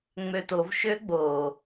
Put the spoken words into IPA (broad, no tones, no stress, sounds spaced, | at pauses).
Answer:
ŋ͡m ø t o v ʃ ø ɡ͡b o